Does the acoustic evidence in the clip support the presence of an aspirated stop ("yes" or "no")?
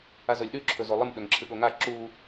yes